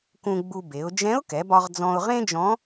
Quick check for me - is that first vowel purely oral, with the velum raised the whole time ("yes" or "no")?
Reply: no